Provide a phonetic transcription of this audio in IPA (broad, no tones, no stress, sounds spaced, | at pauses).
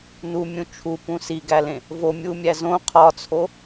n u mʲ ũ t͡ʃʰ u p ũ s i ɡ æ l ẽ | v o mʲ u mʲ æ z õ qʰ ɒ t͡sʰ o